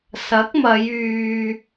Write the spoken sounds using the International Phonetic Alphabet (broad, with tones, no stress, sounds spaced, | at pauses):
s ɐ˨˥ k̚ m ɐ˨˧ j yː˨